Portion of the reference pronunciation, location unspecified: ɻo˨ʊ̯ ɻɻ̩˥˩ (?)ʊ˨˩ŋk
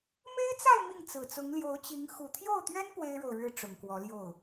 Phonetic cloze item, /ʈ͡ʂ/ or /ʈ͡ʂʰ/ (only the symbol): ʈ͡ʂ